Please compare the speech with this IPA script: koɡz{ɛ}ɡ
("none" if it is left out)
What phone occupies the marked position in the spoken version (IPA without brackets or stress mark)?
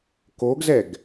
ɛ